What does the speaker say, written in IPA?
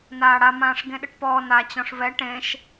naːɽamãːʂ ɡẽɗɘʈpɔː na t͡ɕɔ̃ʂvɛ ʈẽʃ

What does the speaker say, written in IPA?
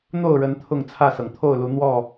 n̪o˥˨ʊ̯ɻə˨˦n t̪ʰʊ˥˨ŋt͡sʰä˥˨sɤ˩ŋ t̪ʰo˥˨ʊ̯lu˨˦ n̪wɔ˥˨

